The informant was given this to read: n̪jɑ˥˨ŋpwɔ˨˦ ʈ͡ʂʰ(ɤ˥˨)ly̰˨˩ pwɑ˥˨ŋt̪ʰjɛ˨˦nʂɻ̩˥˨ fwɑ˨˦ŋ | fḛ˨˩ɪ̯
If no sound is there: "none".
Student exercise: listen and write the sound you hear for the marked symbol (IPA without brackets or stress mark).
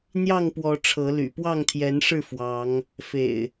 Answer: ɤ˨˦